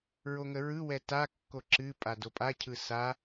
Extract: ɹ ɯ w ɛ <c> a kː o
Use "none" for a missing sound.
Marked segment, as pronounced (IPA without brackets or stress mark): t